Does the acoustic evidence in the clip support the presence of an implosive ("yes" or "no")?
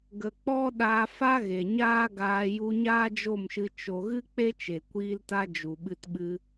yes